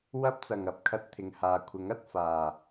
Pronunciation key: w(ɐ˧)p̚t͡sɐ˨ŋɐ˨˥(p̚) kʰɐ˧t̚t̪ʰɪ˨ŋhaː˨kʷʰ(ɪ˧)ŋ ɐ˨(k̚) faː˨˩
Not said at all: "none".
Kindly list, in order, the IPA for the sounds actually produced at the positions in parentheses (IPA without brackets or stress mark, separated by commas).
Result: ɐ˥, p̚, ɪ˨˥, t̚